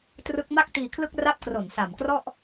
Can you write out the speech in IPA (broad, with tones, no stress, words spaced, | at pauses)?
trɯ˦˥k̚ma˥˩k̚ tiː˧kʰlɯ˥˩k̚ ra˥˩p̚kro˨˩n sa˨˩mkrɔ˥˩ʔ